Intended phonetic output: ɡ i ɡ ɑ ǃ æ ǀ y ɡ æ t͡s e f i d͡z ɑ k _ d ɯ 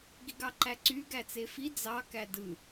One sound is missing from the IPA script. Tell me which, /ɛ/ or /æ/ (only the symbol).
æ